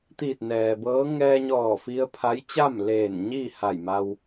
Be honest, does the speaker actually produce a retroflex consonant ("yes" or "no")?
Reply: no